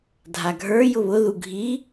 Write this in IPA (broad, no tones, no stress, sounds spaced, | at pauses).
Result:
dʱ a ɡʱ ə˞ j ʊ β ʊ ð u ɡʱ i